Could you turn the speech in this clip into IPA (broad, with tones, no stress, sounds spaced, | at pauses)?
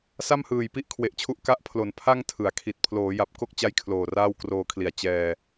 s a˥˩ m h ɯː˨˩ j p i˥˩ ʔ kʰ w e˨˩ ʔ t͡ɕʰ u˦˥ ʔ k a˦˥ ʔ pʰ l o˩˦ n pʰ a˥˩ ŋ tʰ ɯ˩˦ a̯ kʰ i˨˩ t̚ pʰ l oː˩˦ j a˨˩ p̚ k o˥˩ k̚ t͡ɕ a˥˩ j kʰ l oː˨˩ r aː˥˩ w k r oː˧ kʰ l i˨˩ a̯ t͡ɕ ɛː˧